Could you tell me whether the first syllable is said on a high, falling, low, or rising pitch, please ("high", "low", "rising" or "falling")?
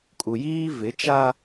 low